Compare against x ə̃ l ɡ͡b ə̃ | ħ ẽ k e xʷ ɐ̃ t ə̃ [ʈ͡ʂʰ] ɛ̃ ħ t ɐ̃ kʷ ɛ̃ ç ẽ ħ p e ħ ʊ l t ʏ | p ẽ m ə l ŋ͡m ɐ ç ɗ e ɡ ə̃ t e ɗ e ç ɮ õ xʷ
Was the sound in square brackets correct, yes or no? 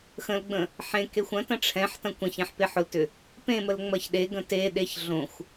yes